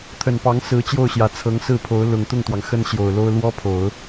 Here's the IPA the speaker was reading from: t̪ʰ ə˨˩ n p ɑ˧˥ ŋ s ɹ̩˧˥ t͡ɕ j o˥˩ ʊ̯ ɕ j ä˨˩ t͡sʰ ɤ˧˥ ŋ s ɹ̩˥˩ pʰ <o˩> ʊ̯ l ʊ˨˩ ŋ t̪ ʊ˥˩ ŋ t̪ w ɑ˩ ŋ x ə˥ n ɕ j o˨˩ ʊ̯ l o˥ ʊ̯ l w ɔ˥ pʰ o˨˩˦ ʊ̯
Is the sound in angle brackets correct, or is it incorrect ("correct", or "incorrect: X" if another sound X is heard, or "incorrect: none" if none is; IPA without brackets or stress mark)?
incorrect: o˧˥